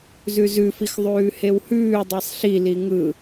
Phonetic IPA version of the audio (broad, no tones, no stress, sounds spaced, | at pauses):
z ʉ z ʉ f i x ðˤ ʉː h e w h ʉː dˤ i sˤ ɬ i l i ŋ ɯ